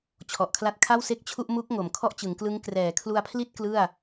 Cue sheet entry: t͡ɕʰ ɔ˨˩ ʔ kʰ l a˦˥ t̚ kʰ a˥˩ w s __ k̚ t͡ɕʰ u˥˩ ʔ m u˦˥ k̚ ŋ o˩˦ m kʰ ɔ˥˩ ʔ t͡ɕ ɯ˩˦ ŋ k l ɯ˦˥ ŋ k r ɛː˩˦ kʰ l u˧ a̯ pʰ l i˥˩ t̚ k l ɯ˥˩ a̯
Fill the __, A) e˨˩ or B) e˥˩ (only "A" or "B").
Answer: B